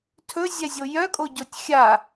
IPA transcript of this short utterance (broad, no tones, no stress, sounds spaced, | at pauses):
tʰ ɵ zʲ ɛ zʲ o j œ kʼ o ɟ o tʲ xʲ a